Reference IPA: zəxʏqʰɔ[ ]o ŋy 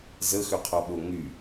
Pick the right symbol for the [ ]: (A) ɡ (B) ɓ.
B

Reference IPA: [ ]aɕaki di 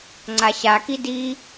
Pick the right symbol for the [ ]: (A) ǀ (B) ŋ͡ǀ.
B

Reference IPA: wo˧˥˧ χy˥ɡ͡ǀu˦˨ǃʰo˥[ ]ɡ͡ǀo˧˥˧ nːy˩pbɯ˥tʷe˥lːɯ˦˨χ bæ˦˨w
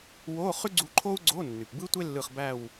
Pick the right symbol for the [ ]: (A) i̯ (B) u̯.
B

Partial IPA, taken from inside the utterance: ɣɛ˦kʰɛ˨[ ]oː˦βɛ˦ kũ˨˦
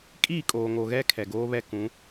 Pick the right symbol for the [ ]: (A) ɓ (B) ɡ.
B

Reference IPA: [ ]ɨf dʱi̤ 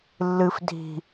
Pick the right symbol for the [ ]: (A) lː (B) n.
A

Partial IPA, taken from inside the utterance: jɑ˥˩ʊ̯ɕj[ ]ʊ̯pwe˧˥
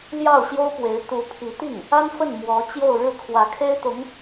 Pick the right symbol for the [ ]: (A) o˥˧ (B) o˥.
B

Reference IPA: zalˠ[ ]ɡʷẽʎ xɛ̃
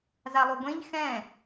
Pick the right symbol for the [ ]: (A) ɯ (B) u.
B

